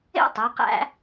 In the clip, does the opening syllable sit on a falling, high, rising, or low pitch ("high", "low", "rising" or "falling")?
high